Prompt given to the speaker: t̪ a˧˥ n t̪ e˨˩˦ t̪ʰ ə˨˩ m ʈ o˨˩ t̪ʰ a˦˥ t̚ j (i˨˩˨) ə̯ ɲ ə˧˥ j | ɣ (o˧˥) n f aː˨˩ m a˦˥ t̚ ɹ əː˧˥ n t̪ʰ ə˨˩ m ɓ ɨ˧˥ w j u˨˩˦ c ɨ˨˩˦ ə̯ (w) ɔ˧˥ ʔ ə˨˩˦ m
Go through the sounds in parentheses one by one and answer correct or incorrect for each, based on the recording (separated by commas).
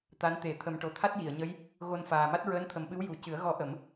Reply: correct, incorrect, incorrect